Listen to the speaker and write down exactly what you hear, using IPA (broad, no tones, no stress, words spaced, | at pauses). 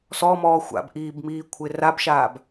sɔmɔː xʷa̰bʔiːbmiːkʷʰɪ rabʃaːb